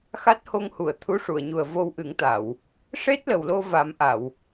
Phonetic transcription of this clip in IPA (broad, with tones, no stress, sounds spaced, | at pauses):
x a˦˥ t̚ h o˧ ŋ h u˨˩˨ ə̯ t̪ʰ u˧˥ ʂ u˨˩˨ ə̯ ɲ u˨˩ ə̯ v o˧ w ʔ ɨ˨˩˦ ŋ t̪ a˨˩˨ w | ʂ e˦˥ t̚ l ə˨˩ w l o˧ v a˨˩˦ m ʔ a˨˩˨ w